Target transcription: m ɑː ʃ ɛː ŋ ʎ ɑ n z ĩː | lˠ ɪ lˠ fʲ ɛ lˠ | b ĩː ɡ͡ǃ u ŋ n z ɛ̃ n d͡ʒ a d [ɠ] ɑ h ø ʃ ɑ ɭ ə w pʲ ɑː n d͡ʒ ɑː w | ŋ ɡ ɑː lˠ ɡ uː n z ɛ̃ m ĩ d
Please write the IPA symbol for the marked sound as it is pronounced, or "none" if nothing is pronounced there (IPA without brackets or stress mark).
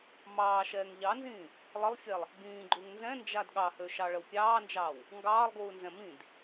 ɠ